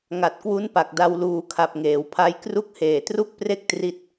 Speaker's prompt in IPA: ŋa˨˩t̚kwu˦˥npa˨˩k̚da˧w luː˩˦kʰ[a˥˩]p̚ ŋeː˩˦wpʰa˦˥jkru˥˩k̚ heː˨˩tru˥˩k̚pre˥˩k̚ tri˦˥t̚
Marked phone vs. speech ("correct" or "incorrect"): incorrect